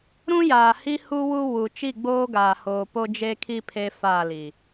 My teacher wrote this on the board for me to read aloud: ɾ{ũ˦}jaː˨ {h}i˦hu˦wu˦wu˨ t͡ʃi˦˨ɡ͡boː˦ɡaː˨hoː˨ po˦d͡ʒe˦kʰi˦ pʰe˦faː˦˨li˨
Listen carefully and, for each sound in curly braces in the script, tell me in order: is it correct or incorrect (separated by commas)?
correct, correct